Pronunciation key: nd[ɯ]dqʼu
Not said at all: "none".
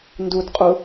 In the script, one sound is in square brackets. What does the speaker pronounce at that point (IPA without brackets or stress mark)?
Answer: u